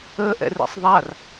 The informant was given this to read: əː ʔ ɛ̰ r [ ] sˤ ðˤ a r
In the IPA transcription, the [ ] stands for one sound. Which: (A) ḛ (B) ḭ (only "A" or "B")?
A